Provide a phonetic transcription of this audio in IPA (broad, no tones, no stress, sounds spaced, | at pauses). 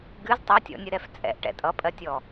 ɡ ɨ z tˤ ʌ tʲ ɔ̰ nʲ ɨ ɾ ɛ f t͡sʼ ɛ̰ ʔ ʈ ɛ̰ tʼ ʌ pʼ ɜ tʲ ɔ